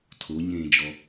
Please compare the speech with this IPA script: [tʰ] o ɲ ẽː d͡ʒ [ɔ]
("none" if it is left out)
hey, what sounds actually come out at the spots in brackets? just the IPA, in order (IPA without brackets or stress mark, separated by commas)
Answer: tʰ, ɔ